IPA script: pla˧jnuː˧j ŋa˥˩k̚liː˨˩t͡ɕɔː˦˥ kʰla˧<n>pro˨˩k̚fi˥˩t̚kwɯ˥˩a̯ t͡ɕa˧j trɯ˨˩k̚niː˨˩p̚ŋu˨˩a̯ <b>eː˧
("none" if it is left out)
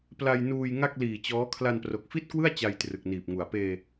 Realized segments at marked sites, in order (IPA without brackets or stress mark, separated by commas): n, p